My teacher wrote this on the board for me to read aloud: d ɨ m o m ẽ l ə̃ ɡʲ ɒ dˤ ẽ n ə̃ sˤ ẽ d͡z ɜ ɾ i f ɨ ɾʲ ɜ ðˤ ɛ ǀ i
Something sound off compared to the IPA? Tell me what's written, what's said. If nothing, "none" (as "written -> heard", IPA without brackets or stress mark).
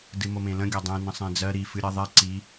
none